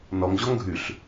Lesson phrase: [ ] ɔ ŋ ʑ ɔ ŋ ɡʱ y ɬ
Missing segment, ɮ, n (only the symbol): n